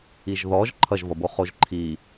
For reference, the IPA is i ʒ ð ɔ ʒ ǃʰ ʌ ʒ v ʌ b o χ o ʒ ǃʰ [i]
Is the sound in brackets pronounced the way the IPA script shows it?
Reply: yes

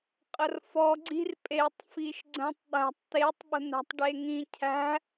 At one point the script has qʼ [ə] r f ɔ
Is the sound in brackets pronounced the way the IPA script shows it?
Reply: yes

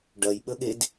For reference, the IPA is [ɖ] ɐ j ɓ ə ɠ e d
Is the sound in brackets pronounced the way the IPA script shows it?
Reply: yes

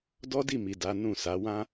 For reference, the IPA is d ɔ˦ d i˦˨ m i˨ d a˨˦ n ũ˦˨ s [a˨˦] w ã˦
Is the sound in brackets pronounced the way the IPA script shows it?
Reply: yes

